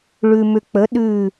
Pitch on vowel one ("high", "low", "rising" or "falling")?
low